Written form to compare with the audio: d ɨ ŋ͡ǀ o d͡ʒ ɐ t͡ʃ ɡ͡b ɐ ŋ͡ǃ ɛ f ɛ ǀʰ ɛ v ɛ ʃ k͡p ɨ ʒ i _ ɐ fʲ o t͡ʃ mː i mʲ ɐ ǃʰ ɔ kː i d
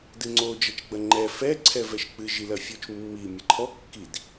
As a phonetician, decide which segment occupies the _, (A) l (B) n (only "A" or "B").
A